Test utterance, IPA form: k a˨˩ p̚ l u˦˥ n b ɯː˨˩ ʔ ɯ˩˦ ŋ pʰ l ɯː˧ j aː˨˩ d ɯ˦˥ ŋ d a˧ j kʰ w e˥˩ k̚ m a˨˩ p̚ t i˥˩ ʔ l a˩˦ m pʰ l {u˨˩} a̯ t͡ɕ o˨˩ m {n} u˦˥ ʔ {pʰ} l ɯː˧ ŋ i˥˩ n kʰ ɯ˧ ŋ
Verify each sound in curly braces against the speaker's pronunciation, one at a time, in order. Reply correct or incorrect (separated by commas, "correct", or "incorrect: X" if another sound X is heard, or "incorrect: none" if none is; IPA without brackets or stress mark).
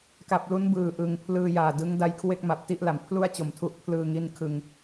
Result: incorrect: u˥˩, incorrect: tʰ, correct